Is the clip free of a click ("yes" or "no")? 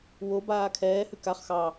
yes